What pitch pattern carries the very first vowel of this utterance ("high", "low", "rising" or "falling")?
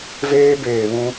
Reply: high